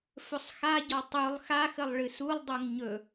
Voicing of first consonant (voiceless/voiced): voiceless